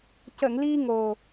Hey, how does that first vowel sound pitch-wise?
low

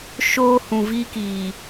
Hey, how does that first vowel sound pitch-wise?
high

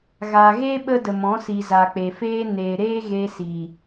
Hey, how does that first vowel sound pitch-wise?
low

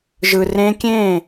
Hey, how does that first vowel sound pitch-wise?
low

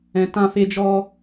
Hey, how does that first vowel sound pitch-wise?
low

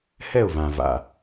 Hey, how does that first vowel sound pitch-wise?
falling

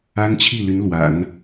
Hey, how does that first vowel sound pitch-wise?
high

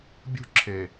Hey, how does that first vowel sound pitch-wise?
high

